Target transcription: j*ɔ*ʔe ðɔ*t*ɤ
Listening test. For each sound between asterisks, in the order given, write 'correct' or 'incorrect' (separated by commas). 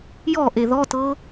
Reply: correct, correct